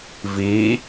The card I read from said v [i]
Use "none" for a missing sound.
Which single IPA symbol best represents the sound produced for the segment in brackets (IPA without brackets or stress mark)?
i